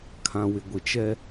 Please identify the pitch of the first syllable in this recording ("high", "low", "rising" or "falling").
low